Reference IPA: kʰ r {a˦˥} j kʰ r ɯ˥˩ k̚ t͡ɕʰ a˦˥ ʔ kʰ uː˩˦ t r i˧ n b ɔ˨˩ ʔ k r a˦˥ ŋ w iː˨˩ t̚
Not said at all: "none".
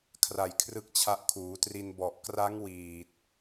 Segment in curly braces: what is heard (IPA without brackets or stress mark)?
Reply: a˨˩